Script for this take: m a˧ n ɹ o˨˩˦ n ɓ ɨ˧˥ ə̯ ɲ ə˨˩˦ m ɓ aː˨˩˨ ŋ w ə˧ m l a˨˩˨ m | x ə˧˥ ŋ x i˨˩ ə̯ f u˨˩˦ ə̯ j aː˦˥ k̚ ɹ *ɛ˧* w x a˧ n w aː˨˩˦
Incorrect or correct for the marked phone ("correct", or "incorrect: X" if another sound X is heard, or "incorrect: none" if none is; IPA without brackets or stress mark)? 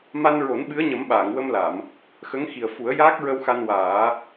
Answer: incorrect: ə˧